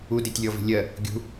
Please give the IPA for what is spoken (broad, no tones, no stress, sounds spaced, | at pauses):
u d i tʲ lʲ ɔ v i̤ lʲ ɜ | ɡʲ ṳ